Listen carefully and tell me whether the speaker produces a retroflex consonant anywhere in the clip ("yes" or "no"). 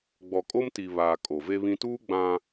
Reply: no